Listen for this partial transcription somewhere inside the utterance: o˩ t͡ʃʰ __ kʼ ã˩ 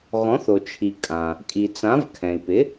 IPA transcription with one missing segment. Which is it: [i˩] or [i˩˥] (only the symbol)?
i˩